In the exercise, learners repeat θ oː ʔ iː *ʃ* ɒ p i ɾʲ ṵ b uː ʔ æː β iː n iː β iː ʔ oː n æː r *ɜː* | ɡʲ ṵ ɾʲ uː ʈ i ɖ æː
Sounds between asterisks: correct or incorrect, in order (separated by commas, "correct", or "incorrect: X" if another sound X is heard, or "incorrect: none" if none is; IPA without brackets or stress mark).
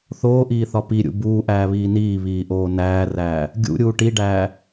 incorrect: θ, incorrect: æː